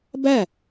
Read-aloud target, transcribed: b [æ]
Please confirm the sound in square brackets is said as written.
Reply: yes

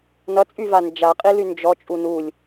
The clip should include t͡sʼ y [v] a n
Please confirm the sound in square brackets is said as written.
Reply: yes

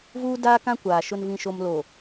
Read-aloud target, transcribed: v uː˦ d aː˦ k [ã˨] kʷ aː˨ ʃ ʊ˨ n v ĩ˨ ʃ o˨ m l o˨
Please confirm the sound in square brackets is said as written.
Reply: no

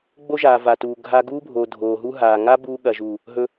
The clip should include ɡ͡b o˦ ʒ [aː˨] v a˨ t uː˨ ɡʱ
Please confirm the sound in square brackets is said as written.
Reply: yes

